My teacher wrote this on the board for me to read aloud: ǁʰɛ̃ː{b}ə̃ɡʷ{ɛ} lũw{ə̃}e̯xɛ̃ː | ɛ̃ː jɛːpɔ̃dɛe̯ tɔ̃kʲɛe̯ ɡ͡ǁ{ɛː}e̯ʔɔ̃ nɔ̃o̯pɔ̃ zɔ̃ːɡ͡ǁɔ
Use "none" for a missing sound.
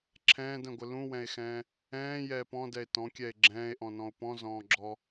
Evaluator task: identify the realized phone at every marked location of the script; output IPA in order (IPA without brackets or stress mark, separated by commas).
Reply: d, ə, ɛ̃, ɛ̃ː